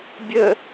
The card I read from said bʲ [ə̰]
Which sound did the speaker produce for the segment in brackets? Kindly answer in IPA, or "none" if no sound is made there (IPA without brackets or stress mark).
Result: ə